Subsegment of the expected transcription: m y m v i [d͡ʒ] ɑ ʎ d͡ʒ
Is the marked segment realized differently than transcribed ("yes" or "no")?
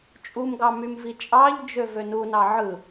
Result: yes